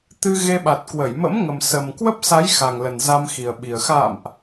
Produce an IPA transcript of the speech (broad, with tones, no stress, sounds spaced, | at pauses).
t̪ ɨ˧ ɣ e˧ ɓ a˨˩ t̚ k w ə˧˩ j m ə̰˧˥ m ŋ ə˨˩ m s ə˨˩ m k w ə˦˥ p̚ s a˨˦ j x a˨˩ ŋ l ə˨˩ n z a˧ m x i˨˩ ə̯ ɓ i˨˩ ə̯ x a̰ː˧˨ m ʔ